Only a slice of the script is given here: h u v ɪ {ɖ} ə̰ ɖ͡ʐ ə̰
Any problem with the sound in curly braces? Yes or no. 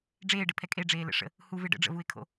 no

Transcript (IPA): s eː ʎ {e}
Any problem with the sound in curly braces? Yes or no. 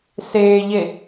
no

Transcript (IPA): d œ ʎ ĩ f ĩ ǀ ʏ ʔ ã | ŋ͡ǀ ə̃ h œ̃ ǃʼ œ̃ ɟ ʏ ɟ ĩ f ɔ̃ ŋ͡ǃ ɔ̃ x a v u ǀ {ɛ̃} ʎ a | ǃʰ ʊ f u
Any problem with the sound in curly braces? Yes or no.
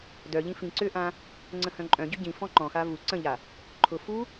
yes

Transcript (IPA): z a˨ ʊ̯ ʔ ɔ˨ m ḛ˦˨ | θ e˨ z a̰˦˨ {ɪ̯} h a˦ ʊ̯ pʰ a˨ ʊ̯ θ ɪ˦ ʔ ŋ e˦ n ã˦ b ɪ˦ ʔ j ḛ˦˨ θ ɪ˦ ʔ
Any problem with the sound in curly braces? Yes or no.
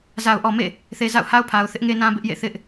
yes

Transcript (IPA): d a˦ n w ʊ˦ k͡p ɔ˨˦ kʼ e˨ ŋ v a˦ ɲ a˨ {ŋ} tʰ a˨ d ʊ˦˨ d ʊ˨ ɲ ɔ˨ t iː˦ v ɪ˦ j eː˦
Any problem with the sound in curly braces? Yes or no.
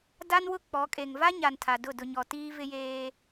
yes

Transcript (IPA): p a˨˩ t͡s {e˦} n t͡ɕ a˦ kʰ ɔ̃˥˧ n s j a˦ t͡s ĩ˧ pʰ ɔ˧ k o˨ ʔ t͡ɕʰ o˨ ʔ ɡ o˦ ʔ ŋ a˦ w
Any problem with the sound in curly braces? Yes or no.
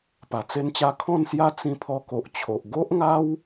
no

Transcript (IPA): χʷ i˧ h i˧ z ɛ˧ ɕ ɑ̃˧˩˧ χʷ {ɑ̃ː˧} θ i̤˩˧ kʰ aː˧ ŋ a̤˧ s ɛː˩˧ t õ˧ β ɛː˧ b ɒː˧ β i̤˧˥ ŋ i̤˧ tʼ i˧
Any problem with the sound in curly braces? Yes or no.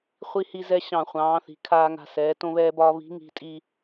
yes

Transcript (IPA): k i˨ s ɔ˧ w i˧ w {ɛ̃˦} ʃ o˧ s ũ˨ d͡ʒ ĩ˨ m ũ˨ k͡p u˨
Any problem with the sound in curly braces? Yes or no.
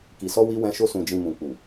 yes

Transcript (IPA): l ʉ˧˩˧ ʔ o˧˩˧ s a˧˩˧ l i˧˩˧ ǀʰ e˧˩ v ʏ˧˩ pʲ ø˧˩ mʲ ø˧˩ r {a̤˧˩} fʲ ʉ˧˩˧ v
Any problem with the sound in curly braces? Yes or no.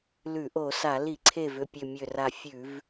yes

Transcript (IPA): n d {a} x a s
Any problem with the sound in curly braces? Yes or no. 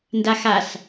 no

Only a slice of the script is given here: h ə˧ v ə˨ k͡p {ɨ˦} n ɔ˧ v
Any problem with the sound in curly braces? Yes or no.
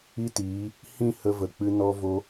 yes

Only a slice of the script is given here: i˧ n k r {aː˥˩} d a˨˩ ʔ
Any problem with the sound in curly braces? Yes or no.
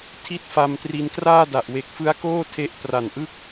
no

